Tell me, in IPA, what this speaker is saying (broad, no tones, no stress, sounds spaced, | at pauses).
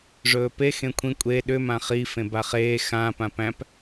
ʐ ɵː p e x ẽ kʷʰ ĩ kʷʼ e ɗ ʏ m ã χ i f ẽ b a χ eː x ã p ã p æ̃ p